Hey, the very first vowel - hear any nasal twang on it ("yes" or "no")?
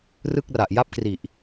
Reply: no